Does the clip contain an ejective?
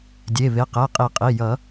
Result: yes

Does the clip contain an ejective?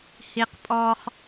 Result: yes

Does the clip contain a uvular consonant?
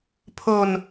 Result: no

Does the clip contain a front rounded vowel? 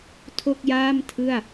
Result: no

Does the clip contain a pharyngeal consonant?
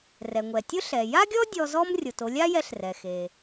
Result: no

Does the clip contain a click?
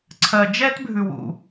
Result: yes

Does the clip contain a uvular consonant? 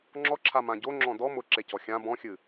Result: no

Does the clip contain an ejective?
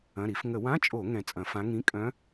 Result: yes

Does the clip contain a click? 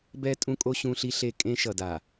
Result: no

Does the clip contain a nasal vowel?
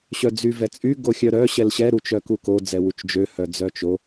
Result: no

